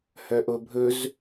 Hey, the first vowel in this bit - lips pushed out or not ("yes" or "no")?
yes